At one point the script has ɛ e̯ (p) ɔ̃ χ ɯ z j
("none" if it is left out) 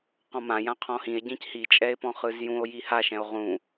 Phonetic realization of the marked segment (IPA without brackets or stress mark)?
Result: p